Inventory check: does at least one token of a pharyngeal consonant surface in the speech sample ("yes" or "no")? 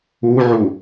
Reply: yes